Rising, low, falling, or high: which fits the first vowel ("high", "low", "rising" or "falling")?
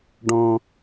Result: low